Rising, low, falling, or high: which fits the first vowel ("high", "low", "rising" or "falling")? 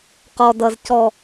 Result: low